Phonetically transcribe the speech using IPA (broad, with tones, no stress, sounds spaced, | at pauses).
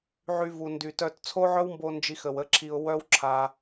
ʕ y˧ v u˨ n d y˨ t œ˧ t t͡sʰ o˦ ʕ œ˦ w m b o˧ n d͡ʒ i˧ x ə˨ w ə˦ ǁʰ i˧ ʊ̯ w œ˦ w ǁʰ a˧